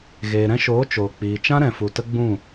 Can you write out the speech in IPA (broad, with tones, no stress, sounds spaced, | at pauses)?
ɣ eː˨ ɾ ɛ̃˧ ʃ oː˨˦ t͡ʃ oː˨ k͡p iː˨ t͡ʃ ã˦ ɾ ɛ̃˨ f u˨ t ə˦ ɡ͡b ũ˦˨